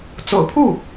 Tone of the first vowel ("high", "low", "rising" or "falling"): low